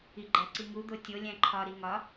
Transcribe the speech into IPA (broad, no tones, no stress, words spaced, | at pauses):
iɡ͡ǃæǀiŋu d̪otʲo lʲæ̃ǃʰɒ ɾiŋɒ